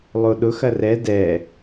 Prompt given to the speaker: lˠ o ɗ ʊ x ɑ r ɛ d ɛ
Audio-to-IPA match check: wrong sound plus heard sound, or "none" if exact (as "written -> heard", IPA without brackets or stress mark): ɑ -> ɐ